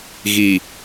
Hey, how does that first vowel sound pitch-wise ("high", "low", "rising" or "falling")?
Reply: low